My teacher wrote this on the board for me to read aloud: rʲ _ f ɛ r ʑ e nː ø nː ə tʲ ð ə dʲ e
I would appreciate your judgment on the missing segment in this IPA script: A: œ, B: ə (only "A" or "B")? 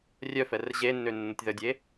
A